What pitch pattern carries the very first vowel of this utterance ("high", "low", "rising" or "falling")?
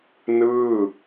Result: falling